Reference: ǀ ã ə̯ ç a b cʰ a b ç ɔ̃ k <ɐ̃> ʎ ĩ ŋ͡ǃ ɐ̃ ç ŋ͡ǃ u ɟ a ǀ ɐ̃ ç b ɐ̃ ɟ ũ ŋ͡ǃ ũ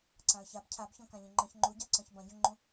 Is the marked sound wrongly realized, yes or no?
yes